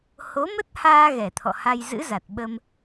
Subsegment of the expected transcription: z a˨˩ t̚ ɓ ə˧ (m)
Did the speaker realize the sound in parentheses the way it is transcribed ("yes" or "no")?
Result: yes